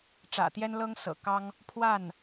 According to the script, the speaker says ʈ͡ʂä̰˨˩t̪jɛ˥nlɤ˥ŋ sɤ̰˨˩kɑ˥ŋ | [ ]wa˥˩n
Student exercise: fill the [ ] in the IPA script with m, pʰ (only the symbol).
pʰ